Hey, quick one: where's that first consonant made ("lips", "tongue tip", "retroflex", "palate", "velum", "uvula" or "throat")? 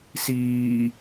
tongue tip